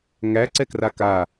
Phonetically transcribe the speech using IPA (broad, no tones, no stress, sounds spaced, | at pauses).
ŋ æ ǀ ɛ k r a k a